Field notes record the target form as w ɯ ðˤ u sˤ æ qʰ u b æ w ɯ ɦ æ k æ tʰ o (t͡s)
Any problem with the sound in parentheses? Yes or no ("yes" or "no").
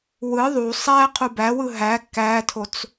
no